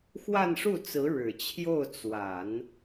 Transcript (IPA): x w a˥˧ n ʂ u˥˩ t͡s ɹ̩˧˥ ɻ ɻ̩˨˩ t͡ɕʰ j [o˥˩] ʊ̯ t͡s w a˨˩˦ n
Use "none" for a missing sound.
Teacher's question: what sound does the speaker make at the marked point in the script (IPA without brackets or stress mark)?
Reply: o˥˩